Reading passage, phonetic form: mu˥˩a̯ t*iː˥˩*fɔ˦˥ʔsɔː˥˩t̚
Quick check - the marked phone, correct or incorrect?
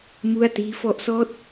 incorrect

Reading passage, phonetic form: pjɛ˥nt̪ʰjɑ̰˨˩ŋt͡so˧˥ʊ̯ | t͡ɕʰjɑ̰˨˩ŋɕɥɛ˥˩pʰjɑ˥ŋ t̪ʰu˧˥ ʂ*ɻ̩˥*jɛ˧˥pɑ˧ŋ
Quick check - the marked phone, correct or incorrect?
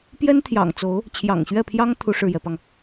incorrect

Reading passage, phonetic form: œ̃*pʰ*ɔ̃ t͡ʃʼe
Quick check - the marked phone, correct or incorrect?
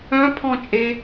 correct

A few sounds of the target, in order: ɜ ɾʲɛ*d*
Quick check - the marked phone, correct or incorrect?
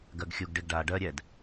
correct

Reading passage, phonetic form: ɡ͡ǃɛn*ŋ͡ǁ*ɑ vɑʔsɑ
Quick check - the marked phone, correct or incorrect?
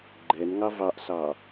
incorrect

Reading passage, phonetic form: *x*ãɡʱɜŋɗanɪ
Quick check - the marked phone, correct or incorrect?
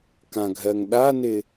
incorrect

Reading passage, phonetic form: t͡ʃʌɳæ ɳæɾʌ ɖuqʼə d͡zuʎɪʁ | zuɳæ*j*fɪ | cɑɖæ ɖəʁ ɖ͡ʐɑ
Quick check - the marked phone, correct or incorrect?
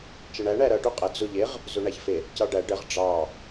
incorrect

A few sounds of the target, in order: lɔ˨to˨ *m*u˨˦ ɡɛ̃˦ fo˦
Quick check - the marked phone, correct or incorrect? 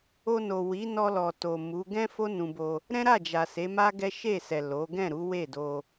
correct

